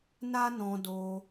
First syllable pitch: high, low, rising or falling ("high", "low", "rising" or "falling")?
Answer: high